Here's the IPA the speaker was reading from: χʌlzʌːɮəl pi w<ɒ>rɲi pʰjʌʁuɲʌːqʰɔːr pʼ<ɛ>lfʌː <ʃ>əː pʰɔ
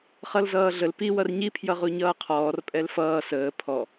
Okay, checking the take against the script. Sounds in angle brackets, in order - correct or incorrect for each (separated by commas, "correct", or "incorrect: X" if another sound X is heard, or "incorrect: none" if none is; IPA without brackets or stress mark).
incorrect: ʌ, correct, incorrect: s